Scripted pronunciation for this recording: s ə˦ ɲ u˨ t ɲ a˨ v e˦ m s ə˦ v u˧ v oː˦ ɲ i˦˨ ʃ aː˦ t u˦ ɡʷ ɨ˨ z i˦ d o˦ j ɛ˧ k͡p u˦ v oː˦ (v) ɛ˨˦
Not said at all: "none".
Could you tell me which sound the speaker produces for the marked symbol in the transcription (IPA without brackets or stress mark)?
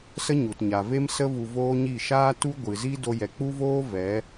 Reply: v